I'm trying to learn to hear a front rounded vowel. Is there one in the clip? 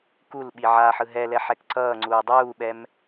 no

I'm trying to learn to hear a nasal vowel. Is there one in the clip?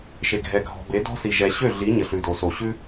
no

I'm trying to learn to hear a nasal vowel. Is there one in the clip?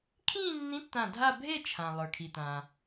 yes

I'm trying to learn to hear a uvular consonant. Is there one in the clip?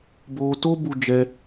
no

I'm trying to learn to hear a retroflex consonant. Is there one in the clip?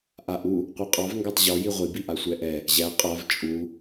no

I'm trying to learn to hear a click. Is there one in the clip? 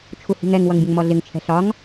no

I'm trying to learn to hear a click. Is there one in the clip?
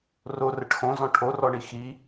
no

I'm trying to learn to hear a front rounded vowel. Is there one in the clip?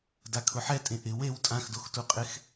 no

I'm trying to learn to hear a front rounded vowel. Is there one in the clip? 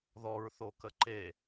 no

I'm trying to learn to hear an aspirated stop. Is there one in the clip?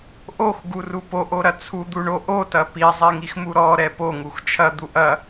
yes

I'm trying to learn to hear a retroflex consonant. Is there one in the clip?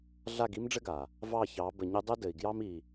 yes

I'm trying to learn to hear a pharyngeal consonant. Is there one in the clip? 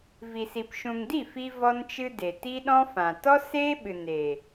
no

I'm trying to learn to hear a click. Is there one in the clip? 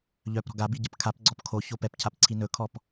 yes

